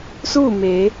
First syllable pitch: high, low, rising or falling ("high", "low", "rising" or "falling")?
falling